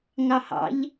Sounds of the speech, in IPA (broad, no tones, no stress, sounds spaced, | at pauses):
ŋ ɑ h ɑ̰ ʎ